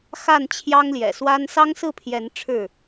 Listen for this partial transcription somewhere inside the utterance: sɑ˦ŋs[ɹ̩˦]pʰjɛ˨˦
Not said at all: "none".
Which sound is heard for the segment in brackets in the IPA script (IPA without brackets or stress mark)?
ɹ̩˥˨